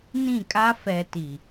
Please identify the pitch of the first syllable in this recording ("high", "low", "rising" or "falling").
falling